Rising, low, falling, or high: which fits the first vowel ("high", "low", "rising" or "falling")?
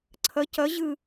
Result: rising